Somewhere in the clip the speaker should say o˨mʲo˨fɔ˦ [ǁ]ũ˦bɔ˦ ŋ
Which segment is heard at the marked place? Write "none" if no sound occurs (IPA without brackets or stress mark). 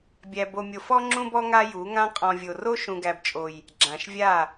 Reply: ŋ͡ǁ